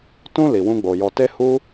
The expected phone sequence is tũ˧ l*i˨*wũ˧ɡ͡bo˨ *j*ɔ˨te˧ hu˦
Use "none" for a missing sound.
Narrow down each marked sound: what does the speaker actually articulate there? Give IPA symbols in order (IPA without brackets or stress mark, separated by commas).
i˨, j